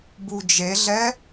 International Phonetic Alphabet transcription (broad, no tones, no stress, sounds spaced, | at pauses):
b u d͡ʒ e ɮ ɛ